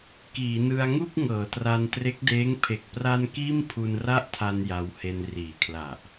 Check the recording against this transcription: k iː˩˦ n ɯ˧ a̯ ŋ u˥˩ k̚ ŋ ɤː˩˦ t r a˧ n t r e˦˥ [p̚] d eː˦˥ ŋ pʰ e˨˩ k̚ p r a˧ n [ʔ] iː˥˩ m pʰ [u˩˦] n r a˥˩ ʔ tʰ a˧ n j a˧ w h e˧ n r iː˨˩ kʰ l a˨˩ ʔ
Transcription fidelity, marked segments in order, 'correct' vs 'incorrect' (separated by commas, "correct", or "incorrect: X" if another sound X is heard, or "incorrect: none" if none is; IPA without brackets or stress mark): incorrect: k̚, incorrect: k, incorrect: u˧